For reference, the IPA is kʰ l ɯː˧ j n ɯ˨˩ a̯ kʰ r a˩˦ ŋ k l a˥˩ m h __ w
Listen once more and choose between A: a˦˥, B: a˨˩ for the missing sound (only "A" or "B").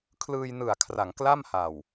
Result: B